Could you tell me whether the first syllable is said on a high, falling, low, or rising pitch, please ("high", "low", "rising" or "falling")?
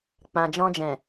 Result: low